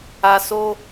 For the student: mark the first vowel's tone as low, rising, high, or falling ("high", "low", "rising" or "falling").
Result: low